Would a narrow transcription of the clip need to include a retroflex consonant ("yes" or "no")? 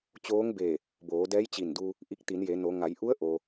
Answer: no